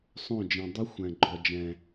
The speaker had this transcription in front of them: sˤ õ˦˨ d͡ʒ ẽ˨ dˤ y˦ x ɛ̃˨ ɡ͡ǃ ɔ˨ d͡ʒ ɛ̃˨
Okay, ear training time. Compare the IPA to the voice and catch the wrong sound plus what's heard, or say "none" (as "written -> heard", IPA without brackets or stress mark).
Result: x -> xʷ